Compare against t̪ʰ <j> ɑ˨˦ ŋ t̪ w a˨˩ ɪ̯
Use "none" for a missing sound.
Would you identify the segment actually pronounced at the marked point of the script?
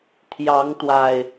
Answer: j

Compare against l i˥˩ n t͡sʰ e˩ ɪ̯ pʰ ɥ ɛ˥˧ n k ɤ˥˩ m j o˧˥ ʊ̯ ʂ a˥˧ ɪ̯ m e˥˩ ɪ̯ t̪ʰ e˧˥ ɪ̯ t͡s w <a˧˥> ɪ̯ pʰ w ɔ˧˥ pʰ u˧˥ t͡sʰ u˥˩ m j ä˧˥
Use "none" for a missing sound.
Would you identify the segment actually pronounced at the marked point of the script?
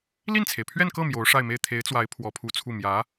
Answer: a˧˥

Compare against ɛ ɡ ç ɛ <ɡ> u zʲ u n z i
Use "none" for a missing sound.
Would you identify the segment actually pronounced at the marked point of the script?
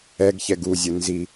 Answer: ɡ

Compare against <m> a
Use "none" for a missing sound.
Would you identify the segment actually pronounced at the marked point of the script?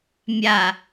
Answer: mʲ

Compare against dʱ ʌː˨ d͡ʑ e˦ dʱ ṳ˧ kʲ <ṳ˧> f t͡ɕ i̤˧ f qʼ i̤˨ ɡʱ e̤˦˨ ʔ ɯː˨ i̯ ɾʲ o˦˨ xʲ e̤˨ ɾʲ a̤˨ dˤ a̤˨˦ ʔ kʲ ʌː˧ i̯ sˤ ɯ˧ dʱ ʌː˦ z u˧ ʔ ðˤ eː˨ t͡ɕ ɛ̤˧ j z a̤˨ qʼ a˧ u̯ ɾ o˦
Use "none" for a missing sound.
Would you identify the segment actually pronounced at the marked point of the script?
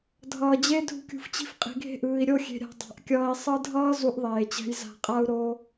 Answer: ṳ˨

